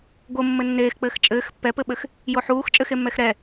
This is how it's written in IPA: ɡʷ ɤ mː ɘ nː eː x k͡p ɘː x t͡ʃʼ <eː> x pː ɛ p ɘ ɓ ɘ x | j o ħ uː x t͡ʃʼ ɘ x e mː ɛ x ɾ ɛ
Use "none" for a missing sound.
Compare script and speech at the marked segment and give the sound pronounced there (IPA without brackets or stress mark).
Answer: ɘː